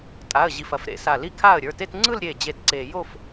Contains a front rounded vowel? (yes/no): no